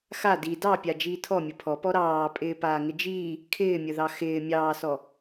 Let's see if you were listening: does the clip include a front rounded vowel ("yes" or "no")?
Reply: no